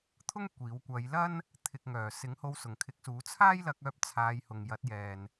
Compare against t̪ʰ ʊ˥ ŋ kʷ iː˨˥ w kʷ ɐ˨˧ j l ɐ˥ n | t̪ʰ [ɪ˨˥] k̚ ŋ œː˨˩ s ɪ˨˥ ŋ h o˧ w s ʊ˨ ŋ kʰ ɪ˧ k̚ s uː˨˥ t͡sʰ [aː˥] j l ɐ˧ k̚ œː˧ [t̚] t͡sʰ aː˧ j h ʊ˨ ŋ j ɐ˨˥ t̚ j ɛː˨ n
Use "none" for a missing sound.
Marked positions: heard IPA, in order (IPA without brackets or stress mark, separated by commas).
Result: ɪ˨, aː˥, p̚